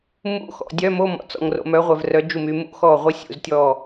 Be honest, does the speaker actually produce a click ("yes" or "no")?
no